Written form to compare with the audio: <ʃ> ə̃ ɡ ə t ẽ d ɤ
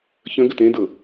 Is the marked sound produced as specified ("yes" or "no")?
no